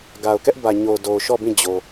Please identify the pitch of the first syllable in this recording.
low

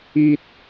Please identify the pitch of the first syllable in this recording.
high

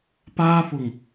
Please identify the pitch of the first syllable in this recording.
high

